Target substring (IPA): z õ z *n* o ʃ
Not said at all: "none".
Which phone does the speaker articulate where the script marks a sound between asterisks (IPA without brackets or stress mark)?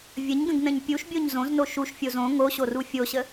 n